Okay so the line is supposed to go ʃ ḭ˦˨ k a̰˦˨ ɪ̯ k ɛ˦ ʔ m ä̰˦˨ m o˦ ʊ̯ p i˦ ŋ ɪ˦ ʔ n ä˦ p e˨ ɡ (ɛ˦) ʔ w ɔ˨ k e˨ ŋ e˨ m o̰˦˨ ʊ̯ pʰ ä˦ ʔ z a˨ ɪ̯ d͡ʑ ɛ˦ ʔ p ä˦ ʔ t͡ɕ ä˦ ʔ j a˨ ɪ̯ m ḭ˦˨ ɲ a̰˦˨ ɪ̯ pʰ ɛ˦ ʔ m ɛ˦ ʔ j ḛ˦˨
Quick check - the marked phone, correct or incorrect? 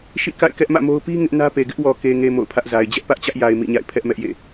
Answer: incorrect